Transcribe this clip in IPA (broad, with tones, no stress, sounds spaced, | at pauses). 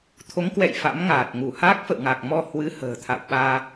t̪ʰ o˨˦ ŋ k w ɛ̰˧˨ j f a̰˧˥ m ŋ aː˨˩ t̚ ŋ u˧˩ h a˦˥ k̚ f ə̰˧˨ w ŋ a˨˩ k̚ m ɔ˧ h w ɨ˨˦ h ə̤ː˨˩ t̪ʰ a̰˧˨ w ɓ aː˧